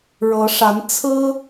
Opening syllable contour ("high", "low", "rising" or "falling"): rising